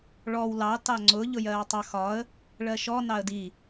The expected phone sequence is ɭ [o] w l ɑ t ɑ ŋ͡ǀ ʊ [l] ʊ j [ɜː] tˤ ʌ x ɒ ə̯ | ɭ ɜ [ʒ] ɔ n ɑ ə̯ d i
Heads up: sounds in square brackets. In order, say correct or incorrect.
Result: incorrect, incorrect, correct, incorrect

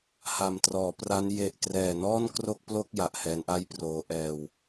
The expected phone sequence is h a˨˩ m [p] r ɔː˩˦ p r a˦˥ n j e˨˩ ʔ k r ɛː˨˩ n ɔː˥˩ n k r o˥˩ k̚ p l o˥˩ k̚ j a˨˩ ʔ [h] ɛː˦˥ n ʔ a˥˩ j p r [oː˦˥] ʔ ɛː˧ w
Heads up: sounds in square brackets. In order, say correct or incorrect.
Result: incorrect, correct, correct

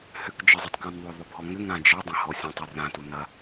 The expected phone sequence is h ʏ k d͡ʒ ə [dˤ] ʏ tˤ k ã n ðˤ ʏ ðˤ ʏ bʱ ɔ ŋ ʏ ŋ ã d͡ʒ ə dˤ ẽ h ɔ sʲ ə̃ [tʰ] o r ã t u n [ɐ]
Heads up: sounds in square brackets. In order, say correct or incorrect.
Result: incorrect, incorrect, correct

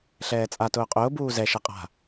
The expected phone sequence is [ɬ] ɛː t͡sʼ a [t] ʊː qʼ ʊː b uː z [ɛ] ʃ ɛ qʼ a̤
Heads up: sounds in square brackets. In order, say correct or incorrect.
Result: correct, correct, correct

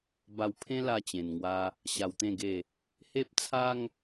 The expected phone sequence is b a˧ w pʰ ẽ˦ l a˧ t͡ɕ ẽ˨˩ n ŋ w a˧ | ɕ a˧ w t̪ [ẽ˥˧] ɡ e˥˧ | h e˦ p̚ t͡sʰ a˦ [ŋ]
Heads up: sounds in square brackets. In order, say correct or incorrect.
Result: correct, correct

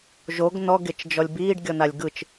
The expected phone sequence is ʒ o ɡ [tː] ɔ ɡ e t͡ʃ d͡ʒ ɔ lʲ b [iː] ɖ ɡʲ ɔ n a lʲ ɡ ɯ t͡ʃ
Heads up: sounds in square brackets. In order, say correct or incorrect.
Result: incorrect, correct

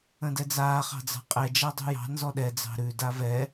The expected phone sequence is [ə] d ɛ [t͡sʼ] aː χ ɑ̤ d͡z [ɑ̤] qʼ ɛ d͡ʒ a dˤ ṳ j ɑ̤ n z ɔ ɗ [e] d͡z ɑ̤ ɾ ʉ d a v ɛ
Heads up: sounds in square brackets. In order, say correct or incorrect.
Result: incorrect, incorrect, correct, incorrect

